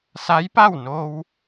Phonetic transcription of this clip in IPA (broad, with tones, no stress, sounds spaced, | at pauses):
s a˧˥ j p a˥˨ w n oː˧ w